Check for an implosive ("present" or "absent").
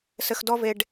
absent